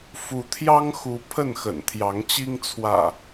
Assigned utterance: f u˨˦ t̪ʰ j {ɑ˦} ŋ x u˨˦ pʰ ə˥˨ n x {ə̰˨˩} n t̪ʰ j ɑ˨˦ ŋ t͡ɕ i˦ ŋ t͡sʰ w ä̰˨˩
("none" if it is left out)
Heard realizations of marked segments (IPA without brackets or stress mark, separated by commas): ɑ˦, ə̰˨˩